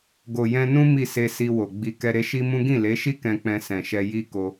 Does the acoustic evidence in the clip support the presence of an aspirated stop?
no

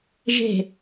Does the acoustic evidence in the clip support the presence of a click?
no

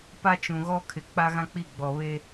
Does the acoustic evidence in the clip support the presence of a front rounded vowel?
no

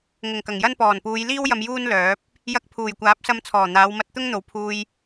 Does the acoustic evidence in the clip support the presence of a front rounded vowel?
yes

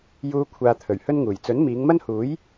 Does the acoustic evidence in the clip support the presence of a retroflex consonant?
no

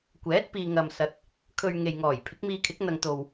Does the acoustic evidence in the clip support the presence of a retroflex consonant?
no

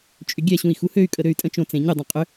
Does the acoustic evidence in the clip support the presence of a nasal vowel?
yes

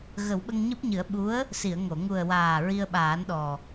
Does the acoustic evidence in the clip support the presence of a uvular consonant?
no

